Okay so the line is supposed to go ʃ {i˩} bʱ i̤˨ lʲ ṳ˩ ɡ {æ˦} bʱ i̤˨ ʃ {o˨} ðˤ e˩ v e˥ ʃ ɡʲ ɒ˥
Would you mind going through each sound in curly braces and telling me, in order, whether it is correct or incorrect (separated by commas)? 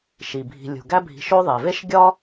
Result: correct, correct, incorrect